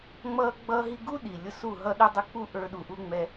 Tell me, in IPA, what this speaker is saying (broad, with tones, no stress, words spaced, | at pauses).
ŋ͡mʌː˦ɡ͡bʌː˦ɦi˦ ɡu˦ɗi˨ lʲʊ˧su˦˨ ɦʌ˦ɗy˦dˤə˦k͡pu˦ ʔə˞˧ɗu˧ʔu˦ ŋ͡mɛ˧